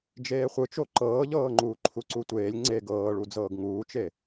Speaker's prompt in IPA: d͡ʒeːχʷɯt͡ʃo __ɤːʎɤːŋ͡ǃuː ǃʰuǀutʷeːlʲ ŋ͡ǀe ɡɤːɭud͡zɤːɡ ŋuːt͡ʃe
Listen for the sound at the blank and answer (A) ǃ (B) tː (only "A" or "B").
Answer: A